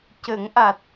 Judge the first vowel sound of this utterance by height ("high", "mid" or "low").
mid